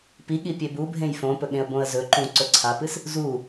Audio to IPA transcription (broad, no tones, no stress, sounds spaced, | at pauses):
p i ɠ i pʲ e b u bʱ ẽ j f õ p ɵ ɠ ẽ ə̯ b õ ə̯ z ɵ ǃ ũ ǀ ɵ ǀʰ a p ɨ s | z u